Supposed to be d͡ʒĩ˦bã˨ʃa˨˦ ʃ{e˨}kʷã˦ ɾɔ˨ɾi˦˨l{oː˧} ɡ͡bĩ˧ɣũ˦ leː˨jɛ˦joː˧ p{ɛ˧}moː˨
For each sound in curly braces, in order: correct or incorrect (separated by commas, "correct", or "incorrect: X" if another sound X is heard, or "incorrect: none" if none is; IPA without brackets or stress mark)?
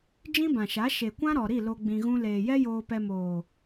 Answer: correct, incorrect: o˧, correct